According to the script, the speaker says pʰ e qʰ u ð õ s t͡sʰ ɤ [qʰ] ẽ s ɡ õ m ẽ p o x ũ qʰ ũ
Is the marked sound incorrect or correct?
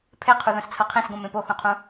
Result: correct